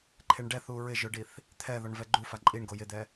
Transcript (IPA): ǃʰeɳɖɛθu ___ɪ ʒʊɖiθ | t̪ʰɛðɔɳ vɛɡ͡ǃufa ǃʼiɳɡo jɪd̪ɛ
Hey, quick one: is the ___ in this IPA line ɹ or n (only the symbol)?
ɹ